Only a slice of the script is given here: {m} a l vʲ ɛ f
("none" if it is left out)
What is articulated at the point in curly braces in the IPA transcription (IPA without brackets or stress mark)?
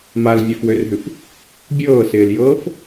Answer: m